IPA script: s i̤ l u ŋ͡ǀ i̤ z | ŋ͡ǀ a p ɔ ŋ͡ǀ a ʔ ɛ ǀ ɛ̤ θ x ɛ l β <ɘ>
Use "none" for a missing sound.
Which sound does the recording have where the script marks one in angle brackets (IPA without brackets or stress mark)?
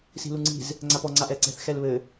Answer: ɘ